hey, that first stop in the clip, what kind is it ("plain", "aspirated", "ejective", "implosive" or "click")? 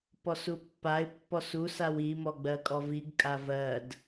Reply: plain